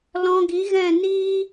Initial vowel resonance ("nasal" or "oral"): nasal